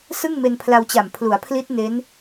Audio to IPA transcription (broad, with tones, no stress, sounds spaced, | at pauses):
s ɯ˥˩ ŋ m e˧ n pʰ l a˧ w t͡ɕ a˨˩ m pʰ l u˩˦ a̯ pʰ l i˦˥ t̚ n e˦˥ n